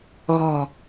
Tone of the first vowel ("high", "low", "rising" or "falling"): low